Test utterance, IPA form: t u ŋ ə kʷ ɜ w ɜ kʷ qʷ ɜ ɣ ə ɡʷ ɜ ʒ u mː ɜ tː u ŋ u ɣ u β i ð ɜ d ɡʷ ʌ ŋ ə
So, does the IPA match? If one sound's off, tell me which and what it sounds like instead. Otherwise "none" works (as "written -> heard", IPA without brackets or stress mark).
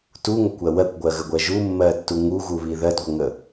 qʷ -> ɡʷ